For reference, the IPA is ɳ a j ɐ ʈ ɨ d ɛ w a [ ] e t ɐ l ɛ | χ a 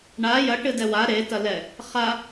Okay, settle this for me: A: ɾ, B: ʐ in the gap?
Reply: A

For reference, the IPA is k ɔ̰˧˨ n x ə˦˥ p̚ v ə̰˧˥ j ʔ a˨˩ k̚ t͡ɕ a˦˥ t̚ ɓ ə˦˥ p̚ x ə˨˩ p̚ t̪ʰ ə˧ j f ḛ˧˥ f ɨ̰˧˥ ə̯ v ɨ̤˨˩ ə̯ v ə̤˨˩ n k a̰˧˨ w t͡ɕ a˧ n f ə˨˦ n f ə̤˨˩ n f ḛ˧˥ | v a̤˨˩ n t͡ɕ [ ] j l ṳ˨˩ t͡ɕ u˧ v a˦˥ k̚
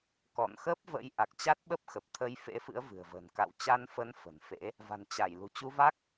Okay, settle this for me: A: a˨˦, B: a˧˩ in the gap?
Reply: B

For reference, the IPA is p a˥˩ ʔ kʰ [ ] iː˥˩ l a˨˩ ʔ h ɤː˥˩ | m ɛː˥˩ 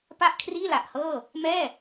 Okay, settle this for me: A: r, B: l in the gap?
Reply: A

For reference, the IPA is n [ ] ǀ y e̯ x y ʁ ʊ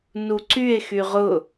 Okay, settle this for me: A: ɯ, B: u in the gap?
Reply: B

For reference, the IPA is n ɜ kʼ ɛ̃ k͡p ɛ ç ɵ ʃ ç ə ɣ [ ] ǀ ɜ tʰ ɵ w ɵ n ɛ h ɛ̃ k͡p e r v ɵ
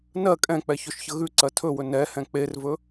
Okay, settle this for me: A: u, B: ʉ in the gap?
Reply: B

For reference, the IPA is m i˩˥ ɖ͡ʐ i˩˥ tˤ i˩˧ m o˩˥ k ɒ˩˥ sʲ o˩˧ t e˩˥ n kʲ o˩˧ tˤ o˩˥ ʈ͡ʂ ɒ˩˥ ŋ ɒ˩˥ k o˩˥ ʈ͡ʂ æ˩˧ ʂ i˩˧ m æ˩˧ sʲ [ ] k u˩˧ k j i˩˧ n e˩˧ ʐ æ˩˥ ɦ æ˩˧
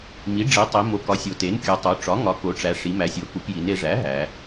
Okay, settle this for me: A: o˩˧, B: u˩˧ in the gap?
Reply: A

